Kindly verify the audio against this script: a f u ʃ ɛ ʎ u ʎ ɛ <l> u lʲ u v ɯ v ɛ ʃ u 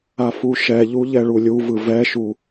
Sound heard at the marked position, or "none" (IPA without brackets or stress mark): ɭ